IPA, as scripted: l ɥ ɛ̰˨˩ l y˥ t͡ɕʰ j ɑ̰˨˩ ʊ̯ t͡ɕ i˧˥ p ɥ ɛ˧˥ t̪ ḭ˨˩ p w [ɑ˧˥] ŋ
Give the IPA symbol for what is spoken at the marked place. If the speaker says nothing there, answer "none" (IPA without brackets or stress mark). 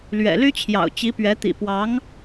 ɑ˧˥